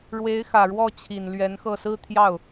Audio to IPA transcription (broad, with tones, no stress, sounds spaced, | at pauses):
ɻ w e˧˥ ɪ̯ x ä˨˩ ɻ w ɔ˥˩ t͡ɕʰ i˨˩ n l ɥ ɛ˧˥ n x ɤ˥˩ s ɹ̩˥ t̪ʰ j ɑ˥˩ ʊ̯